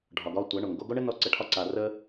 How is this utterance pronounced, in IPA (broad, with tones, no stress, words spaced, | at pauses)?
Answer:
ɖʱɒ˨ɡɒ˧tʷæ˨˦ ɳo˨ŋɡo˧ɡo˦ ɳɘ˦nɔ˧ǀə˨ʈʰɒ˧ ǀa˨rə˧